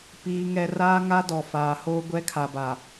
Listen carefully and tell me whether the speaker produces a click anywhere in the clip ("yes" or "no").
no